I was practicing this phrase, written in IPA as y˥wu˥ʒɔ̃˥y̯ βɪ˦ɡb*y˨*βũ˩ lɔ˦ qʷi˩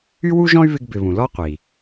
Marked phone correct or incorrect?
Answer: incorrect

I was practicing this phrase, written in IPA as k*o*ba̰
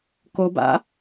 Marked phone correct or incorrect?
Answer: correct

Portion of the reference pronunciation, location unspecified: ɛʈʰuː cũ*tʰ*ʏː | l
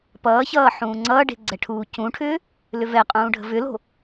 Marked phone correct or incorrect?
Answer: incorrect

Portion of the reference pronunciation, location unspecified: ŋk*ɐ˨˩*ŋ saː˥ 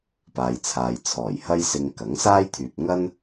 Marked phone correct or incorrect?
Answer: incorrect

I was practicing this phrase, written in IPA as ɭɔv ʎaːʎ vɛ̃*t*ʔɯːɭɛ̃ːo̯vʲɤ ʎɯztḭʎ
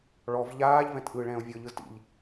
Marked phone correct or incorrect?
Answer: correct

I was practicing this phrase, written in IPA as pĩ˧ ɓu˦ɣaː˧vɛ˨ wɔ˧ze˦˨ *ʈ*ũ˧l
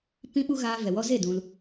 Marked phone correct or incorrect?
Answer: incorrect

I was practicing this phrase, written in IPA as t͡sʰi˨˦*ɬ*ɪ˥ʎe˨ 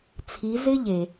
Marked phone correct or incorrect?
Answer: incorrect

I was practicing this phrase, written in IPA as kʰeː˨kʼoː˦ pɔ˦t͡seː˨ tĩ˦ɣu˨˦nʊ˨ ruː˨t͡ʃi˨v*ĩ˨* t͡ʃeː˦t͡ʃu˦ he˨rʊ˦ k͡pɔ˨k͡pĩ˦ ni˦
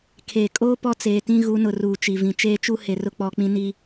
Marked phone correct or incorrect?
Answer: correct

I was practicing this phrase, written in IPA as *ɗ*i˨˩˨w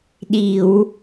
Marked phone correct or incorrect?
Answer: correct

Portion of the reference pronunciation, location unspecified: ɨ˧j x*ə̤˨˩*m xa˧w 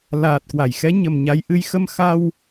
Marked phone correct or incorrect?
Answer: incorrect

